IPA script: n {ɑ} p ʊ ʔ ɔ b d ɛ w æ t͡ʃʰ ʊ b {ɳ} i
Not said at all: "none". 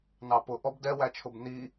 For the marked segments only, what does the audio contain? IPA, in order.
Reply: ɑ, n

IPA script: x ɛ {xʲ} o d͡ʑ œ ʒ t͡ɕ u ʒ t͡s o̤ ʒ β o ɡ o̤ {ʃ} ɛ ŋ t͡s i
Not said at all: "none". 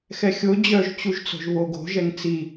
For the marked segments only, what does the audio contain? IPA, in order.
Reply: xʲ, ʒ

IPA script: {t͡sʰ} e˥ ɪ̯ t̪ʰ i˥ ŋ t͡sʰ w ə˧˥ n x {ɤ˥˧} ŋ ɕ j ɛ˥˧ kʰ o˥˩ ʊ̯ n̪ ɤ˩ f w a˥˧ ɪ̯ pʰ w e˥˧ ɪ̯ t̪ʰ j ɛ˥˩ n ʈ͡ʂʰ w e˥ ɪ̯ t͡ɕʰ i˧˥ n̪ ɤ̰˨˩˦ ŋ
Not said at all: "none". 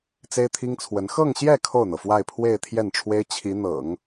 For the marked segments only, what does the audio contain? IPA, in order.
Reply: t͡s, ɤ˥˧

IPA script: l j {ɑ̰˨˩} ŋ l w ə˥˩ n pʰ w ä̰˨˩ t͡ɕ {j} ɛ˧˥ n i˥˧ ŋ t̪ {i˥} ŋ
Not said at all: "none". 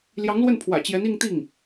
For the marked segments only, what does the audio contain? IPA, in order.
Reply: ɑ˧˥, j, i˥˩

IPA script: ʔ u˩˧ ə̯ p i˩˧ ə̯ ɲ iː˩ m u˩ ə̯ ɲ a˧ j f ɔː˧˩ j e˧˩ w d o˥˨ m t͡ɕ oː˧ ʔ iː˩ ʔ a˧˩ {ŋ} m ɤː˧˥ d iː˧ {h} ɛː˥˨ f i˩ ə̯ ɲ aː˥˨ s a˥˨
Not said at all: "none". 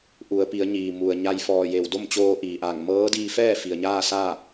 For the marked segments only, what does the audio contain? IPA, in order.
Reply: ŋ, f

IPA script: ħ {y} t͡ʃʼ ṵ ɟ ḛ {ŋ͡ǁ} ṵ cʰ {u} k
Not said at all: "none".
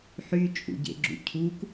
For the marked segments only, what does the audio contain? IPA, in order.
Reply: y, ɡ͡ǁ, u

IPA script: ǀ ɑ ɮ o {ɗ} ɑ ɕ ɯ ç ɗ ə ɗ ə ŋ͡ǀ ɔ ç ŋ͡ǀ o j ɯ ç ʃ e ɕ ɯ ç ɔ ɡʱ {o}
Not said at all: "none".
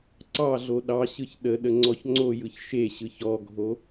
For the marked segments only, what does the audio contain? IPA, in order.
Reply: ɗ, o

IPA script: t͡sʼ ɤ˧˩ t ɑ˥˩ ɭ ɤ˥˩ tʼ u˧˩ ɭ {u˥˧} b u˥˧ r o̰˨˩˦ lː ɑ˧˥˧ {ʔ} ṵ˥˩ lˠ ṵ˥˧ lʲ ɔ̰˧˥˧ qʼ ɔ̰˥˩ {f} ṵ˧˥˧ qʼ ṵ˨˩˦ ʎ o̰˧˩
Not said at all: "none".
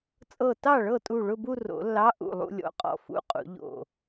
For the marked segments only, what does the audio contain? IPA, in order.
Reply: ʊ˥˧, ʔ, f

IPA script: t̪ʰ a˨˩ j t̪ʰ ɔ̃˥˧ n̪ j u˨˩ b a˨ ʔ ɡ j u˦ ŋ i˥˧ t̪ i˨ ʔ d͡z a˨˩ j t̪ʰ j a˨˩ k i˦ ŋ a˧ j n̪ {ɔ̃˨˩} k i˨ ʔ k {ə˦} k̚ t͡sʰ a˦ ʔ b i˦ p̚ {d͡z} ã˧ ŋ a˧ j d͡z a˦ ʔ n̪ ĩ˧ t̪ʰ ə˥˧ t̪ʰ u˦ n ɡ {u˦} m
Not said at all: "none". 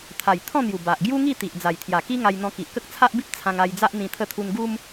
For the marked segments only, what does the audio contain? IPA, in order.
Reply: ɔ̃˧, ə˦, t͡sʰ, u˦

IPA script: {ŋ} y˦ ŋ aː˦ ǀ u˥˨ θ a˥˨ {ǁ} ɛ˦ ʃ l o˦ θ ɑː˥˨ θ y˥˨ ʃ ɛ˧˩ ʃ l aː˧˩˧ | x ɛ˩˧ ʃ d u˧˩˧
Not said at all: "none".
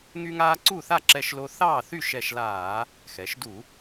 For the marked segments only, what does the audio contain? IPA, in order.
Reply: ŋ, ǁ

